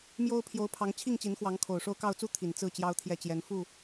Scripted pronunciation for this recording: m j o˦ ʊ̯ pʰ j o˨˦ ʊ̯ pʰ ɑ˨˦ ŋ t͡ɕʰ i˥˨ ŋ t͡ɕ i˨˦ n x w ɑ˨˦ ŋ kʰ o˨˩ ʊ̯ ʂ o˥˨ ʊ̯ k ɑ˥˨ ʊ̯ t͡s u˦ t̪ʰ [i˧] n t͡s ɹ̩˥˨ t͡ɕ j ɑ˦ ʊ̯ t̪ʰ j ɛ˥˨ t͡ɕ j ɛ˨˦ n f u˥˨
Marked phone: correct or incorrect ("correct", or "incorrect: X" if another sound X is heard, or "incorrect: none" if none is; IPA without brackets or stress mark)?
incorrect: i˨˩